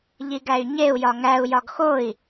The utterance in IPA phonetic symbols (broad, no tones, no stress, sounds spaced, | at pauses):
ʎ i ɡ æ y̯ ɲ e u̯ j ɒ ŋ æ u̯ j ɒ ɡ x o i̯